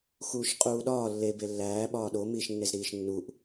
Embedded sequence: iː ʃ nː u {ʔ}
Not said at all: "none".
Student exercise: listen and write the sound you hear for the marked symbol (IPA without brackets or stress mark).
ʔ